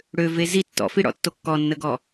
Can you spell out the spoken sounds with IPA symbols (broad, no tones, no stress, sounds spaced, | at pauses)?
ɽ ø v e z i tː ɔ̰ f i ɽ ɔ̰ tː o kː ɔ nː ə ɡ ɔ